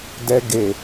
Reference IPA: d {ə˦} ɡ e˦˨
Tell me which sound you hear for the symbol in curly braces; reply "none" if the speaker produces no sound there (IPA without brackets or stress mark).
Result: ɛ˦